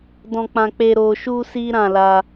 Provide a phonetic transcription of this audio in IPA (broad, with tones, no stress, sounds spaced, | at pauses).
d ɔ̃˧ k͡p ã˧ k͡p e˧ ɾ o˧ ʃ u˦ s i˦ ɾ ã˦˨ l a˧